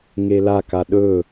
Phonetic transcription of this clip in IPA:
ŋela kaɗɵ

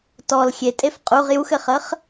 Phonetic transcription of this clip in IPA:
tɔl xʲetʼef qʼuʁ juxɘχəχ

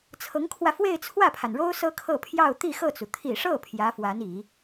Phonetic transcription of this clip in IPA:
t͡sʰɤ˧˥ŋkʰwä˧ fwe˥˧ɪ̯t͡sʰwä˥˩pʰa˩nɻo˥ʊ̯ sɤ˥kʰɤ˥˧pʰjɑ˥˧ʊ̯ t̪i˥˧xɤ˥˩t͡su˩ t̪ʰi˨˩ʂɤ˥˩ pʰjä˧˥fwa˧˥ni˨˩˦

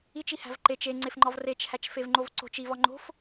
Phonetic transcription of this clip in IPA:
it͡ʃihæ̤v ǃet͡ʃ eŋ͡ǀefŋ͡ǃɒv ret͡ʃhæt͡ʃfevŋ͡ǃov ǀo̤t͡ʃ ivɒ ŋ͡ǃo̤f

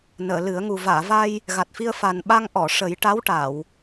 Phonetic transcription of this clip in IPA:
nəː˨˩˨lɨ˨˩˦ə̯ŋu˨˩ vaː˨˩˨va˧j | ɣa˨˩t̚fi˧ə̯fa˨˩nɓa˧ŋ ʔɔ˨˩˨ ʂə˨˩˦jʈa˧˥wʈa˨˩˨w

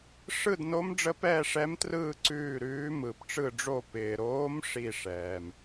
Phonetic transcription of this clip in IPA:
ʂɯ˦˨dno˧˥m ɖ͡ʐə˧˥pɛː˦˨ʂɛ˧˥mtrɯː˦˨ ǀʉː˦˨ɾʉː˧˥ mɯ˩p ʈ͡ʂɯ˦˨ɖ͡ʐo˦˨ pɪː˩ɾoː˧˥m ʂi˦˨ ʂɛː˩m

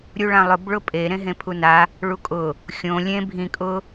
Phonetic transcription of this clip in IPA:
ɾʲuɭãlˠʊb ɭʊpʼe ɾẽɦẽpʰuna | ɭukʼʊ | xʲõ lʲẽ bʱĩ kʼʊ

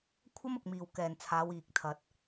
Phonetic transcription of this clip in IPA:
kʷʰɐ˥mʊ˨k̚miː˨w kɛː˨nt͡sʰaː˨˧w iː˨k̚t̪ʰɐ˧t̚

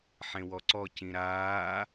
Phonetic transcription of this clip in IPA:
ħẽwɔǀɔ cĩɾaː

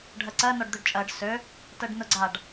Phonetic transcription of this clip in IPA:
ɖʱɜǀɜ nɔɖd̪øɖt͡ʃʼɜɖ sø | tɜɖnʊɡ͡ǀaɖ

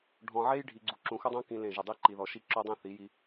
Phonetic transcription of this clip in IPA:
ɖʱɔ̃˨ʕe˦jɖʱi˨ɡ͡ǀu˨ ǁũ˨xʊ˦dˤõ˦ kĩ˨ lẽ˦˨ʒʊ˦˨ dˤi˦ǃi˨ðɔ˨ ʃi˦ǁo˦dˤẽ˦ θi˨˦ji˦

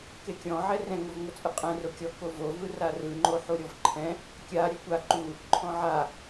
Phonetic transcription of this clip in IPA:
kekʲɔ̃ ʕɛrɛ̃ ŋovŋot͡sʼɯqʼɛ̃ rokʲɔ kovo vɯrarɯ ŋ͡ǃoħuɾʲɔvǃʰɛ̃ | kʲa ɾʲɛkʷa ǃu | ǃʰɔ̃ʕa

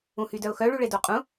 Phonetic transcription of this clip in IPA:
ũhydœʊ̯xœ ɭyɭedoqʼũ

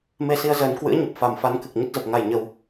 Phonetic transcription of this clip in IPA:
me˧si˨˦ə̯ zəː˨˦n kwɨ̰˧˥ə̯ɲə˨˩p̚ fa˨˩m fa˨˦nkɨ˨˩k̚ ɲə˦˥t̚zə˨˩p̚ ŋa˨˩j ɲə˨˩w

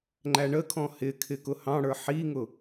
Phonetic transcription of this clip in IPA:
ŋ͡ǃæɳəkʰɔ̃ hɪkʰɪ kʊhɑ̃ɽə˞ ħiŋʊ

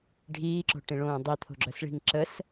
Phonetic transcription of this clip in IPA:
ɖʱiːǁo̤ʈĩɭõː dˤit̪ʰo̤ɡ͡ǁœsɭi̤ŋ ǁəs

